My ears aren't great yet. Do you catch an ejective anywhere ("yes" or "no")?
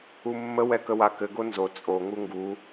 yes